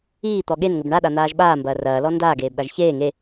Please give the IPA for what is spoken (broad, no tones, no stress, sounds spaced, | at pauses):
iː t̪ ɔ ɠ e n ŋ ɘ b ɳ a ɗ a n̪ aː ʒ ɓ aː m b ɐː r ɐː l ɔ n d aː ɡ eː b ɗ a ʒ ç eː ŋ e